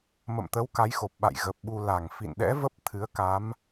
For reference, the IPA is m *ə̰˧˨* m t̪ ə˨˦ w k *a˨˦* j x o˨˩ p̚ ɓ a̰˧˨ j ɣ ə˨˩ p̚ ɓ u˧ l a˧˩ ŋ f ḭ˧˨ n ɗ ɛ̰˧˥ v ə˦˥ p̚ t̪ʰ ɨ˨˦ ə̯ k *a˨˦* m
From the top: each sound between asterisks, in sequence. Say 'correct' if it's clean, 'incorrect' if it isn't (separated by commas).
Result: correct, correct, correct